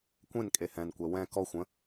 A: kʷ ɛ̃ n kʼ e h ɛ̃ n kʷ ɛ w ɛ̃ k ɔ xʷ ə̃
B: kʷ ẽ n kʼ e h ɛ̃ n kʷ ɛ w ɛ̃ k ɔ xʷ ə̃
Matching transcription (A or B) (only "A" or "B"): B